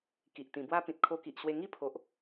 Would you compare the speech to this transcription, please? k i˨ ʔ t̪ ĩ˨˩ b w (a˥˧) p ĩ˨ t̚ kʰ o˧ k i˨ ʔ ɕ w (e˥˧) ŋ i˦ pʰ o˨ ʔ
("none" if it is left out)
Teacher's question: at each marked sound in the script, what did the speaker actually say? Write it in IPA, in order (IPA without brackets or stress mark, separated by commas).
a˦, e˧